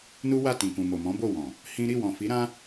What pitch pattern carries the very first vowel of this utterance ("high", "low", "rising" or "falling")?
high